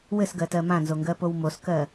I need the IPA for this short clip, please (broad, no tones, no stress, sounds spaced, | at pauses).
w ɘ s ɡ ɜ t ɜ m ã n z o ŋ ɡ ɜ p o w m o s k ɜ